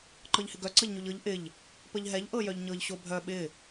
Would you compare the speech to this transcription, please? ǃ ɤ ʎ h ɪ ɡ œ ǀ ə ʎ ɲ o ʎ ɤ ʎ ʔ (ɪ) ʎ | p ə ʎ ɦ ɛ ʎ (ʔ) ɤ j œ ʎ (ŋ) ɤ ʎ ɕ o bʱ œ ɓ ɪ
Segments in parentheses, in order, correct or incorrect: correct, correct, incorrect: ɲ

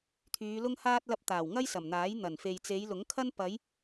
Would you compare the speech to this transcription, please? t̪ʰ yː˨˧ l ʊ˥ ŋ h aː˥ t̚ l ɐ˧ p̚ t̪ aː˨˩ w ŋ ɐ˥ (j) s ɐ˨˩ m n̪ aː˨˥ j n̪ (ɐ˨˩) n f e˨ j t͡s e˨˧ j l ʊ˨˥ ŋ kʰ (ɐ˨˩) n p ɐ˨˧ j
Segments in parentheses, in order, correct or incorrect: correct, correct, incorrect: ɐ˥

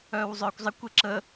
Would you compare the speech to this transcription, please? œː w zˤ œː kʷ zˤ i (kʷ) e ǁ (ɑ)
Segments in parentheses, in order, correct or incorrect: correct, incorrect: ə

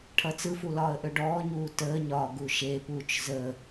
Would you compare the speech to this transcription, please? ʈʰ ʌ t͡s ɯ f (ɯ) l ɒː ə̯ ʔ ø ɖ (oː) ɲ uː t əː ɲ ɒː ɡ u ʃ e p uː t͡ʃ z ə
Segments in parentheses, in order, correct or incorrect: incorrect: u, incorrect: ɔː

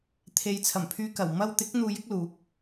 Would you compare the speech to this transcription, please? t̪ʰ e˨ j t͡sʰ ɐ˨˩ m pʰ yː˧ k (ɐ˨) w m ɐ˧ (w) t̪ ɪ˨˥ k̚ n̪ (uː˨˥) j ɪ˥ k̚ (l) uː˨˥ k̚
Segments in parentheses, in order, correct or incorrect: incorrect: ɐ˨˩, correct, incorrect: uː˧, correct

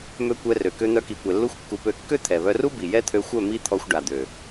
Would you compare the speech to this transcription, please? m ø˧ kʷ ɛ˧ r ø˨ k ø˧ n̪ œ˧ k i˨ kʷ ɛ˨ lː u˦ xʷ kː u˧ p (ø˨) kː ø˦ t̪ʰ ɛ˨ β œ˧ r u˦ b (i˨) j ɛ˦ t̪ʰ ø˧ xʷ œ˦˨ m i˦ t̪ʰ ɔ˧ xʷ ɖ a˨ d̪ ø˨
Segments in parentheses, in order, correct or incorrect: incorrect: ø˦˨, correct

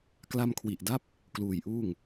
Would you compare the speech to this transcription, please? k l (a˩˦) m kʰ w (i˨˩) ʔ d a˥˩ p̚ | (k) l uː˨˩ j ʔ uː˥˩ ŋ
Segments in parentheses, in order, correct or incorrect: incorrect: a˧, correct, correct

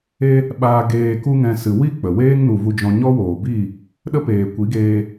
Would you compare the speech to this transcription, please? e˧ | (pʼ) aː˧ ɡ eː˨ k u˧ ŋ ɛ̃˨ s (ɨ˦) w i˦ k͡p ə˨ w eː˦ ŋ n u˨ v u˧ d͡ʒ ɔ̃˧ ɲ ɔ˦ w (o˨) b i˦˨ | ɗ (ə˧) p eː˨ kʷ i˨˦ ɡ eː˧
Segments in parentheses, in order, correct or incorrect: incorrect: ɓ, incorrect: ɨ˨, incorrect: oː˨, incorrect: ə˦

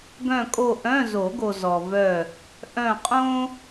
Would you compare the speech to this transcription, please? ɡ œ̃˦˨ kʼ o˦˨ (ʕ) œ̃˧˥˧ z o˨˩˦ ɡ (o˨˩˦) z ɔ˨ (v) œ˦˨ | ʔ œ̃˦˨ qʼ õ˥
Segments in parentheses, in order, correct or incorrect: incorrect: ʔ, incorrect: o˨, correct

